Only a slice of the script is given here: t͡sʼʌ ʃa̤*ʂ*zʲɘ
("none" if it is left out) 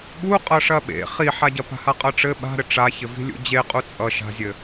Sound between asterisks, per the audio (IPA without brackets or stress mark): none